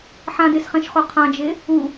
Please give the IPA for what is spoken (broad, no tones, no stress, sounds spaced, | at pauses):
ħ ã d e s χ ɛ̃ ʃ χ o qʰ ã d͡ʒ e | u